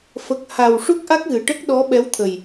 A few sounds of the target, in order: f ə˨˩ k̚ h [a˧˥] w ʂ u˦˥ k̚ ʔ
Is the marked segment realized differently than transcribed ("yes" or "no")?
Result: yes